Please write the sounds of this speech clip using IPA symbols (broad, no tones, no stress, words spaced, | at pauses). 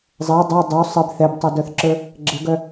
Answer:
zˤɛ dˤœ dˤu sˤɘb θɛbtˤodœθǁə˞ | ɡ͡ǁɘɡœ